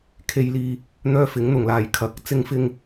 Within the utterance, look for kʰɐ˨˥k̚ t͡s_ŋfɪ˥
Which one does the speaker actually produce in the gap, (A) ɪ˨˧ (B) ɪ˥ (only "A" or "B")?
B